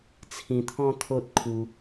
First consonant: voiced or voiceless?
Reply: voiceless